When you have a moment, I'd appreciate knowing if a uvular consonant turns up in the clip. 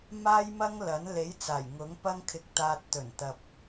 no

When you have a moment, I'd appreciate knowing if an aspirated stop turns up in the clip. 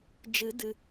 no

